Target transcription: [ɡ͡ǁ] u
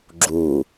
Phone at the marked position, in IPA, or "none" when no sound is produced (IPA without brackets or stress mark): ɡ͡ǁ